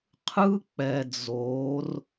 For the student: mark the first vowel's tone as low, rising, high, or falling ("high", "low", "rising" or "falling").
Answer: high